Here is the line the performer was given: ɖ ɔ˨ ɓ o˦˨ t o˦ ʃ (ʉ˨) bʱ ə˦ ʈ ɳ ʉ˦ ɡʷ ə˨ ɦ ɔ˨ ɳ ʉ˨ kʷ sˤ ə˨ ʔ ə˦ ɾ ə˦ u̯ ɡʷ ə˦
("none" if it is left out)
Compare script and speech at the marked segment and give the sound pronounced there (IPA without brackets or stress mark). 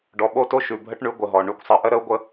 ʉ˨